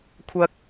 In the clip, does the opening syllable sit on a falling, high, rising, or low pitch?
low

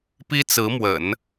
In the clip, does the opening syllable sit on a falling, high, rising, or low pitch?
high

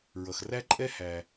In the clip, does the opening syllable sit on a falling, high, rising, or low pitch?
low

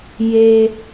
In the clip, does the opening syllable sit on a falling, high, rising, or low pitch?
low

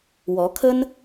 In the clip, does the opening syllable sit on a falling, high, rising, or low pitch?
rising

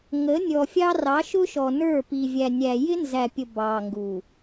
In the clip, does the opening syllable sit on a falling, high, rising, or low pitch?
rising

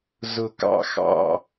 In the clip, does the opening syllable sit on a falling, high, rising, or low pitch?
low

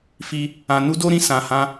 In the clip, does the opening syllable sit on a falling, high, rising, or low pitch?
high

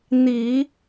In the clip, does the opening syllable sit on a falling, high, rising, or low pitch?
low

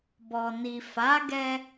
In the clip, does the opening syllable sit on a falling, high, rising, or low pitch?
low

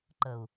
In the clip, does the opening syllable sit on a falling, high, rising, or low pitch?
low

